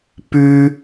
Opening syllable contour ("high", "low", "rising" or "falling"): high